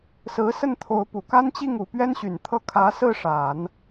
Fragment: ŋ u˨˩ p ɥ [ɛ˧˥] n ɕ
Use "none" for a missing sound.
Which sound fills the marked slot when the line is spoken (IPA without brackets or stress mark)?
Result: ɛ˥